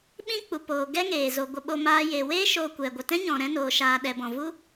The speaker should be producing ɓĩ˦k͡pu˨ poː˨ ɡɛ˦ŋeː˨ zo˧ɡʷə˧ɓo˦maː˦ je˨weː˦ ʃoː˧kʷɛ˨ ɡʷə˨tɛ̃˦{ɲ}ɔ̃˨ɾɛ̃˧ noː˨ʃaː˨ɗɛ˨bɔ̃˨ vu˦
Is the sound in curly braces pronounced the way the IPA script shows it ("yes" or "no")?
yes